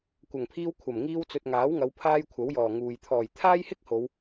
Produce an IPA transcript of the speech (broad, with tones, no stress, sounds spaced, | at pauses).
kʷ ɐ˨˩ ŋ pʰ iː˧ w kʷʰ ɐ˨˩ m ŋ iː˧ w t͡s ɵ˨ t̚ ŋ aː˨˥ w ŋ ɐ˨˧ w pʰ aː˥ j kʷʰ ɐ˨˥ w j ɔː˨˩ ŋ uː˨ j t̪ʰ ɔː˨˩ j t̪ʰ aː˥ j h ɪ˥ k̚ h o˨˧ w